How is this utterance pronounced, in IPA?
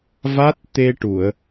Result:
v a˦˥ t̚ t̪ e˧ ʈ u˨˩˨ ə̯

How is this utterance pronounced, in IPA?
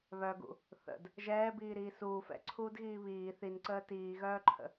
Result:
β œ ɡ ṵ | θ ə̰ d | ʒ ɛː b iː ɾ iː s uː f ɛ̰ ǀʰ uː d ɣ iː β iː θ i n ǀ əː t iː ɣ œː ǃʰ ə̰

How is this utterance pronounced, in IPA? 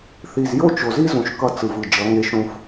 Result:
θ i˨ z j o˦ t͡ʃ o˨ z i˦ z ũ˨ ʃ k ʌ˦ t͡s ɯ˨ v ɯ˨ d͡ʒ ʌ˨˦ ŋ e˦ ʃ ũ˦ f

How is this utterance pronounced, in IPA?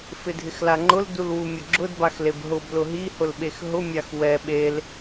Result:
f ɪ dʱ ɪ x l a ŋ͡ǃ ʊ l d u l w u mʲ ʊ ɡ͡ǁ ʊ d b a x l e b ɦ ʊ b l ʊ ɦ i h ʊ l ɓ e x ɦ ʊ mʲ a x w ɛ ɓ e l

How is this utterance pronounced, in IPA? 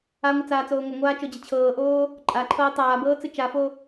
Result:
a ŋʷ ɨ t͡s aː t͡s oː ŋʷ ɤ ŋʷ aː t͡ʃ o d͡ʑ ə t͡ɕʰ ɤː ʔ oː | ǃʼ a ǃʰ ɤː tˤ aː b ɤː t͡s ɨ t͡ʃ a f o

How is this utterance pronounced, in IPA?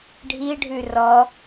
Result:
ɖʱ i ɖʱ ʉ r ɔ

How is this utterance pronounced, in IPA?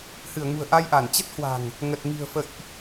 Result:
h ɨ˧˩ ə̯ ŋ ṳ˨˩ ə̯ ʔ a˧ j ʔ a˧˩ n t͡ɕ ə˦˥ t̚ h w a̤˨˩ ŋ | ŋ ə˨˩ t̚ ŋ i̤˨˩ ə̯ f ə̰˧˨ j ʔ

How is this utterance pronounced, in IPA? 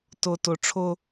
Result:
t ʊ t ʊ ʈ͡ʂʰ ʊ

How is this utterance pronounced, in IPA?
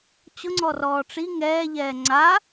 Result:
t͡ɕ ʊ ŋ͡ǀ ɔ r ɔː ʈ͡ʂ i ŋ ɛː ʎ ɛː ŋ͡ǀ a

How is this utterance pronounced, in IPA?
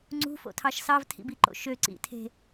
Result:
ŋ͡ǀ ṳ f o̰ tʰ ɑ ʃ s ɑ v tʰ ḭ b i ǃ o̰ ʃ ø ǀ ḭ tʰ e̤

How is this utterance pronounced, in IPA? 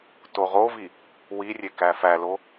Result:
t o ʁ o v i | w i rʲ e k æ f æ l o

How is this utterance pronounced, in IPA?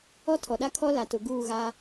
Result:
ɔ˦ tʰ ɔ˨ ɗ a˦ kʰ ɔ˦ l a˨ t ʊ˨ ɡ uː˦˨ ɣ a˦

